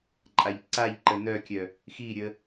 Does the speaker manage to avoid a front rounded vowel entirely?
no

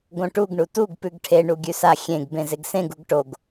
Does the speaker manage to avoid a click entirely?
yes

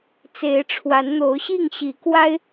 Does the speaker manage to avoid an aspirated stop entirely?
no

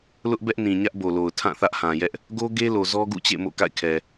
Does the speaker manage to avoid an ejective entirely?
yes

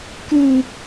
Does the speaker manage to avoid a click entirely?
yes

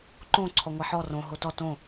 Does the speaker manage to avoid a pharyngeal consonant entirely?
no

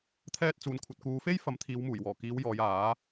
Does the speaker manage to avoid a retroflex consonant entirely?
yes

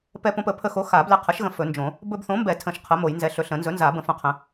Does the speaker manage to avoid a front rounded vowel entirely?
yes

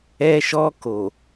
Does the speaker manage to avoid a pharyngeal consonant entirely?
yes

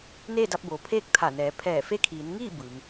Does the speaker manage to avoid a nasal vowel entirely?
yes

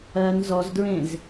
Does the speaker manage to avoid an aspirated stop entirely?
yes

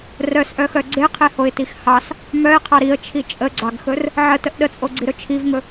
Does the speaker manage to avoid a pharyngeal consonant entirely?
no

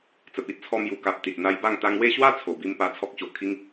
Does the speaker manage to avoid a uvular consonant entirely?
yes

